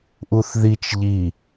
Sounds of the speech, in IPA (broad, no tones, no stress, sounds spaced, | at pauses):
ʔ u θ ð i t͡ʃ ʎ i